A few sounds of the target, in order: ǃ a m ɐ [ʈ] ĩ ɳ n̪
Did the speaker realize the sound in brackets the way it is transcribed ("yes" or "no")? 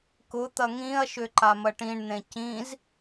yes